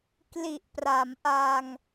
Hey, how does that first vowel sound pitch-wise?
low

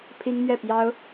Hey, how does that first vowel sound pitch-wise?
high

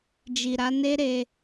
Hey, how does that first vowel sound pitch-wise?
low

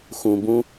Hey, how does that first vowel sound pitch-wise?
low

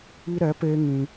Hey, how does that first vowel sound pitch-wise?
high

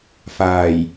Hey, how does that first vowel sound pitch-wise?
low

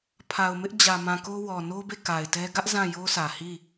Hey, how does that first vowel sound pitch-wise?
low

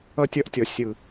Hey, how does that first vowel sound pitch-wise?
high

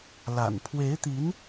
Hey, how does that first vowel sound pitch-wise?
low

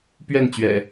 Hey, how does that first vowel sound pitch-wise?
falling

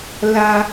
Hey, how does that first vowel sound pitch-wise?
high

